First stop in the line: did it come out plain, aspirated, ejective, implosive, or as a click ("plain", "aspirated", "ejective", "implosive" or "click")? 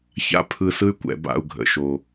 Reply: aspirated